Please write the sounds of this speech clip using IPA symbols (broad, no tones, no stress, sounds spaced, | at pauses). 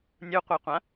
nʲ u qʷ e qʷ ɐ̃